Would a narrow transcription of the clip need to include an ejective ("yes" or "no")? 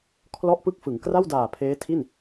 no